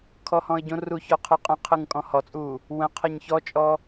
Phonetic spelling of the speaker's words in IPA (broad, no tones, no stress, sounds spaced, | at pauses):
kʰ ɔ h ɔ̃ ə̯ ɟ õ r u ç ɔ qʰ ɯ qʼ ə̃ qʰ ɯ ŋ kʼ ɔ̃ h ɔ t͡sʼ uː | w ə̃ qʰ ɐ ɲ ç ɔ t͡ʃʼ ɔ